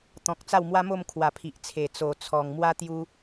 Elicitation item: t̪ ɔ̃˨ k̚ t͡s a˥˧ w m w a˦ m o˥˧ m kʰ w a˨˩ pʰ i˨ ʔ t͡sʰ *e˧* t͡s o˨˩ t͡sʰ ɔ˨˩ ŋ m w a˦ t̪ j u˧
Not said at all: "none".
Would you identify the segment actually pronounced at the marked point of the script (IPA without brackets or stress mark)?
e˨˩